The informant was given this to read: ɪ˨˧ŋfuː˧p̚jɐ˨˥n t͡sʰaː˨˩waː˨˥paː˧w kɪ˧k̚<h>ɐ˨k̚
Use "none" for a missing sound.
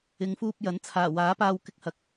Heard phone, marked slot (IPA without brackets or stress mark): h